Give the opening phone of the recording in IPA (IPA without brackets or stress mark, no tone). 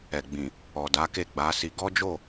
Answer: ɛ